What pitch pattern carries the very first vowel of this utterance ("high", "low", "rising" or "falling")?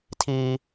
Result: high